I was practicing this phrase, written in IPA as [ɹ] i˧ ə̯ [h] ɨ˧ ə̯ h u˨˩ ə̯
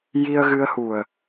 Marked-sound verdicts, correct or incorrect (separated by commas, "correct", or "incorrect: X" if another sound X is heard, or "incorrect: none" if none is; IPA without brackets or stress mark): incorrect: j, incorrect: ɣ